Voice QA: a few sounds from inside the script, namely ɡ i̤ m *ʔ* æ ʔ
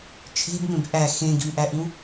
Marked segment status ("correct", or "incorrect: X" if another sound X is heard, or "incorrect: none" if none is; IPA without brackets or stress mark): correct